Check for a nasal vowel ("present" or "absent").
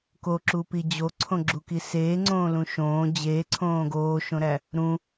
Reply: present